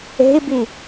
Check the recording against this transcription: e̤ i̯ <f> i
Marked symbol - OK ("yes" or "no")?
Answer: no